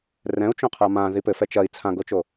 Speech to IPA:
r ɛ̃ u̯ t͡ʃ õ qʰ a m ã ð i p ɘ f ɛ t͡ʃ ɐ i̯ t͡sʰ ã ɡ o t͡ʃ o

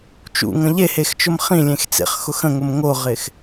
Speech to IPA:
t͡ʃ ṵ ŋ ə̃ ʎ e h e x t͡ʃ ʊ m χ ĩ lʲ ẽ x t͡s ḛ χ x ʊ x ə̃ ŋ ʊ m ŋ o ʁ ɪ x

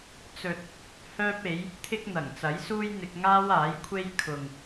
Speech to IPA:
t͡s ɵ˨ t̚ | h œː˥ p̚ e˨˥ j | t̪ʰ ɪ˥ k̚ n̪ ɐ˨˩ ŋ t͡s ɐ˨˥ j s uː˥ j n̪ ɪ˧ k̚ ŋ aː˥ w aː˨˥ j kʷʰ e˥ j kʰ ʊ˨ ŋ

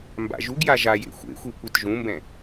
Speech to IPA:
m b a̰ ʒ u ɡ j a ʒ a j ḛ xʷ ḛ xʷ i kʷ i t ʒ ũ m b ɛ̃

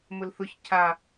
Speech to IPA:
m ʊ l θ ʊ ç cʰ a

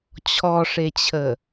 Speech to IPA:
t͡ɕʰ ɔ ʂ e t͡ɕʰ ə

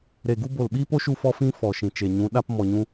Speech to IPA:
ɾ e˨ ɡ u˧ b o˨ l ɓ iː˦ p o˦ ʃ u˧ f ɔ˧ f ĩ˧ f ɔ˨ ʃ ĩ˨ t͡ʃ e˨ ɲ ũ˨˦ ɗ a˧ p m ɔ˨ ɲ ũ˧

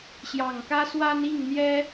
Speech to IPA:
ɕ j ɑ˨˩ ŋ k ä˦ s w a˦ n i˥˨ ŋ n̪ j ɛ˦

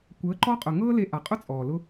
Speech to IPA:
kʷ əː˨˦ ǃ ɔ˦ qʼ ʊː˨ ŋ ɤː˦ l e˧ ʔ a˨ qʼ ʊ˦ t͡sʼ ɔː˨ l ʊ˦

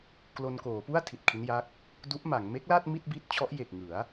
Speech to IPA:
k l o˧ n k oː˩˦ p u˥˩ a̯ tʰ i˨˩ t̚ kʰ i˦˥ n j a˦˥ k̚ | d u˦˥ ʔ m a˩˦ ŋ m e˦˥ k̚ l a˥˩ t̚ m i˥˩ t̚ b i˦˥ t̚ t͡ɕʰ ɔ˦˥ ʔ j e˨˩ k̚ ŋ ɯ˩˦ a̯

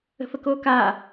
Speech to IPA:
ə̤ f ə k oː k aː

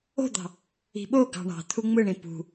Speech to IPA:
o̤ d̪ ɑ̤ | i̤ ɓ o ɡ ɑ̤ ɳ ɑ̤ t̪ʰ u ŋ͡m ɯ ɳ ĩ p ṳ

